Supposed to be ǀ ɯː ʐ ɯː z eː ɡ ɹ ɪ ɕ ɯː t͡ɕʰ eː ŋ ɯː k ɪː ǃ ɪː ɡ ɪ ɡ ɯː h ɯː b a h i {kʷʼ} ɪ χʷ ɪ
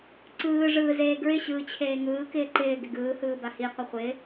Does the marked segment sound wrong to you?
yes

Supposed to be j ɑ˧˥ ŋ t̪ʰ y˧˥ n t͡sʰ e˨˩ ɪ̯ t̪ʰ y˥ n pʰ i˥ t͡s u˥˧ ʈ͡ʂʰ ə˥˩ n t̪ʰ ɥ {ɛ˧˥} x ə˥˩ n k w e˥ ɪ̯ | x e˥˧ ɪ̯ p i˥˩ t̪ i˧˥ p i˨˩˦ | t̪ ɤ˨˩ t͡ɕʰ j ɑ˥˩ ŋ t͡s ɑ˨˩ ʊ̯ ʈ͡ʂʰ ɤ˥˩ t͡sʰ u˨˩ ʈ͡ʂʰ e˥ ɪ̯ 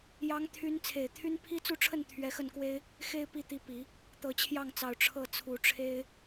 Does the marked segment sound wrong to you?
no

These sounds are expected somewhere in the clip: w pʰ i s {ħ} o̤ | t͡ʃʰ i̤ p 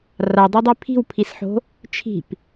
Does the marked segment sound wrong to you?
no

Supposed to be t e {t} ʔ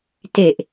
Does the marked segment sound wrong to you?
yes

